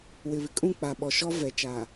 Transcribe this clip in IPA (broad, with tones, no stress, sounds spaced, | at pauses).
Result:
w ɪ˨ β ɪ˨ kʼ ũ˦˨ k͡p a˨ ɓ ɔ˨ ʃ ɔ˦ v ɛ˨ t͡ʃ a˨